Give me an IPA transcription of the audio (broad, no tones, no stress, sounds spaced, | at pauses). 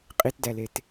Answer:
qʼ i t d æ l e t